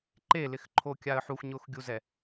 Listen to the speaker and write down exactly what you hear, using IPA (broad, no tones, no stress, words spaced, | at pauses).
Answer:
ǃelɪxǃʰokʲaə̯ ħuxɲʊːxɡʲuzɛ